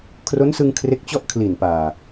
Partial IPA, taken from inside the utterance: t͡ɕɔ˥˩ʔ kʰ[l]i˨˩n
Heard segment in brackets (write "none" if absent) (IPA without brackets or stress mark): l